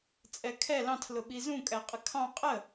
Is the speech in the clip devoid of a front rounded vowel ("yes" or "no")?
yes